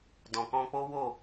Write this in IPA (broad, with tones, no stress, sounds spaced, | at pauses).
d ɔ̃˨ k ɔ̃˧ k͡p o˦ w o˦˨